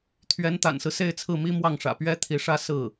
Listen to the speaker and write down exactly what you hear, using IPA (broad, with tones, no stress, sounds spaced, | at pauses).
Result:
t̪ʰ ɥ ɛ˧˥ n t̪ a̰˨˩ n s ɹ̩˦ s e˥˧ ɪ̯ t͡sʰ ɹ̩˥˩ m i˥ m w ɑ˥˩ ŋ ʂ ä̰˨˩ p ɥ ɛ˥ t̪ʰ i˧˥ ʂ ä˥ s ɹ̩˥˩